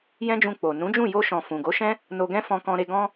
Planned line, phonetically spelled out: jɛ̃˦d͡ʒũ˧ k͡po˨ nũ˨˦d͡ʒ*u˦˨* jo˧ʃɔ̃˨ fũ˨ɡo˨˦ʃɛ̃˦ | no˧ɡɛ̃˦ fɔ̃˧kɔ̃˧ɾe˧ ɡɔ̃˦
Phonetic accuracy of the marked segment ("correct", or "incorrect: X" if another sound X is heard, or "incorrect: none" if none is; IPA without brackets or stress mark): incorrect: ũ˦˨